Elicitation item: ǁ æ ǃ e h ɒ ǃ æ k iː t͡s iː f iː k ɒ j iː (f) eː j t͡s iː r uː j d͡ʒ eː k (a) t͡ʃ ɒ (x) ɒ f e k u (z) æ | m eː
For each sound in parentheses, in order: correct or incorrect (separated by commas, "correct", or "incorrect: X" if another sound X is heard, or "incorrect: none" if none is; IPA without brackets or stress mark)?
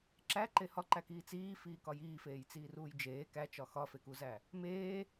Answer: correct, incorrect: æ, correct, correct